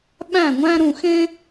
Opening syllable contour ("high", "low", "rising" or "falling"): falling